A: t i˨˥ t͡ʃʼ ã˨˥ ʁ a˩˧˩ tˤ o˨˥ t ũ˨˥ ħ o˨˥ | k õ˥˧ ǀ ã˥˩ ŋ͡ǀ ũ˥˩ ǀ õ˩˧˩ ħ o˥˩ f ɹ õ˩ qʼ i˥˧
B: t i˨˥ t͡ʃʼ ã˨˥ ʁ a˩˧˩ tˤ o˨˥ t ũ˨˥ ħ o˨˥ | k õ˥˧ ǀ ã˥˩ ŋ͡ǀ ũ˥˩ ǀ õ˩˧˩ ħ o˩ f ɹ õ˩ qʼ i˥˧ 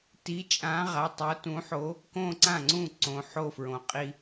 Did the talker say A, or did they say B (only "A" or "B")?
A